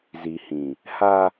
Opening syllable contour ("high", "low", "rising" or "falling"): low